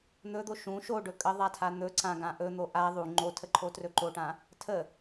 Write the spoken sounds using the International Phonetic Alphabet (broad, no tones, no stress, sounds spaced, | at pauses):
n̪ ɵ d̪ o ʃ ũ ʃ o ɖ ɵ kʼ ə ðˤ a tʰ a n̪ ɵ ǀ ã ɡ ã ʔ ɵ n̪ o ʔ a ðˤ u ŋ͡ǃ o tʰ ə ǃʰ o t r ɵ ǃ o ʈ ã | tʰ ə